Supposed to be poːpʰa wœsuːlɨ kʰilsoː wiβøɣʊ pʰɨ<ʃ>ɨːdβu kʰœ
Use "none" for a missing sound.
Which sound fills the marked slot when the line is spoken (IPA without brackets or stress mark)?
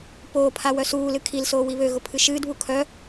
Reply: ʃ